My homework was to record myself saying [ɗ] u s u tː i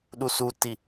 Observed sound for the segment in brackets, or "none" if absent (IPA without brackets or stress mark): ɗ